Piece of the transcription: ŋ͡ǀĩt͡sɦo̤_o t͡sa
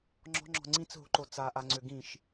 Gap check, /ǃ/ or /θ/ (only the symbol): ǃ